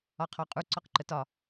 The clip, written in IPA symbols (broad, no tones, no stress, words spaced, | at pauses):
ɒqʰɔqʼu ǀɔqǃətɒ